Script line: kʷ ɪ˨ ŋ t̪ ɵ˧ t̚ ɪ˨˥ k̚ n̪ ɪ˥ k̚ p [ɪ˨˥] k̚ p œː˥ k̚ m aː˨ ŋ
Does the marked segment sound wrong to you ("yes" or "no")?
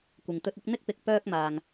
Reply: no